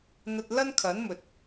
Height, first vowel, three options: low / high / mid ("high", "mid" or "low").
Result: low